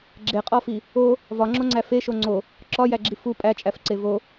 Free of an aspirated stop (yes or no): yes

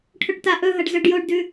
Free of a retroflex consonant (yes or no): no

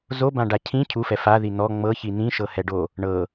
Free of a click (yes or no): yes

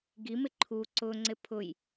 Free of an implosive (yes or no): yes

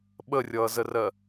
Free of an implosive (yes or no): no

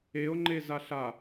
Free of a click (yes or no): no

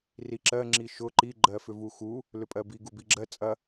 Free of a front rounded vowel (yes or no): no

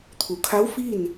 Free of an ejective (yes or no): yes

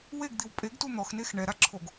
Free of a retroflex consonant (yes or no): no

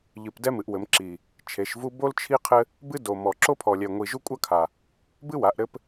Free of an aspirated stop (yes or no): no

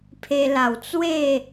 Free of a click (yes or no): yes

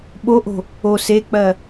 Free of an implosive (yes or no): no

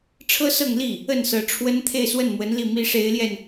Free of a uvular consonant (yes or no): yes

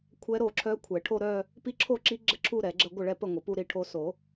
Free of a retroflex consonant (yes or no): no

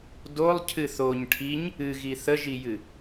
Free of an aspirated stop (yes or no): no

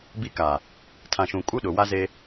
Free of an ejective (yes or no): no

